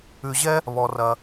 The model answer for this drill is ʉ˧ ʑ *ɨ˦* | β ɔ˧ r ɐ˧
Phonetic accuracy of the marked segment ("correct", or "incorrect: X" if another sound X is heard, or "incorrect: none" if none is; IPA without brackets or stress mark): incorrect: ɛ˦